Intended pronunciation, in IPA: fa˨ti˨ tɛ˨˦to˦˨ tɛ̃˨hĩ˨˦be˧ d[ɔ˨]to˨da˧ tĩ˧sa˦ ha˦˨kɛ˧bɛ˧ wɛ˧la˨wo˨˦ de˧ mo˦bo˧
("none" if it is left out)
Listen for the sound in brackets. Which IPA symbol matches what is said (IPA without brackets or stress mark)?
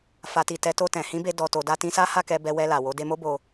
ɔ˨